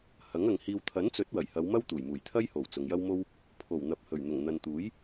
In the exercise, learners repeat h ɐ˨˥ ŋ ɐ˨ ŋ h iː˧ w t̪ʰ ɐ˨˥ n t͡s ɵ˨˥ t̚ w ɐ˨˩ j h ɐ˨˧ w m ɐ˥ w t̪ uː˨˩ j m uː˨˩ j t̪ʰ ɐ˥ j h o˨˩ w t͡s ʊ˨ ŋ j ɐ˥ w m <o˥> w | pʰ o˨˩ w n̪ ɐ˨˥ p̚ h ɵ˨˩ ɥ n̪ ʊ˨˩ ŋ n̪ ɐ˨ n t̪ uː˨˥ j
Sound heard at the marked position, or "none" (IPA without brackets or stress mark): o˥